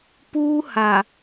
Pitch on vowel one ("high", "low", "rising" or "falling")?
high